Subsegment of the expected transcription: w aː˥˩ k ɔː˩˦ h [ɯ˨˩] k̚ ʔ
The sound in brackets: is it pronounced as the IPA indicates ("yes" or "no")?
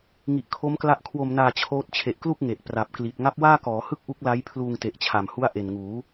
no